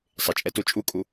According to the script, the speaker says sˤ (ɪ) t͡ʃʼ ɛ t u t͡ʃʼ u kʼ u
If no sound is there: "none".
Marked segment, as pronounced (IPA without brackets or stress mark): ɪ